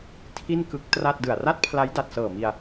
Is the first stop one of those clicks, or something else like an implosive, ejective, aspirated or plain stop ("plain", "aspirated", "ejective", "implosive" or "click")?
aspirated